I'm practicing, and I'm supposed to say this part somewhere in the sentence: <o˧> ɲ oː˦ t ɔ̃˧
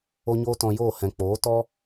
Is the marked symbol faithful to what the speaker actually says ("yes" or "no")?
no